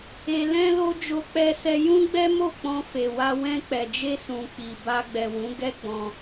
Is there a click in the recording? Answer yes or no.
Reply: no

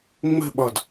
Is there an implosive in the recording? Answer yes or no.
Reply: yes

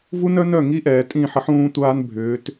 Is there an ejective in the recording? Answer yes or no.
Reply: yes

